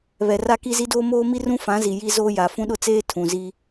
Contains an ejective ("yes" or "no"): no